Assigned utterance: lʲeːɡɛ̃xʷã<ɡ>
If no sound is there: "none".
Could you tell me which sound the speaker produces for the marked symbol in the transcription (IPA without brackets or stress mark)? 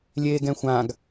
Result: ɡ